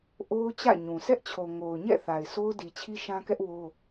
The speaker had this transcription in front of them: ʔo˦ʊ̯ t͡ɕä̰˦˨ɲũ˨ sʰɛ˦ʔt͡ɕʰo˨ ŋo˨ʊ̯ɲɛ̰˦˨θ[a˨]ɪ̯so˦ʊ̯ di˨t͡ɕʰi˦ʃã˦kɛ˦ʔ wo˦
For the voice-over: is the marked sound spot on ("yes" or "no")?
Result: yes